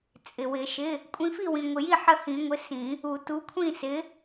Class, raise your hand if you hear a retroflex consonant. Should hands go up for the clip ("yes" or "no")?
no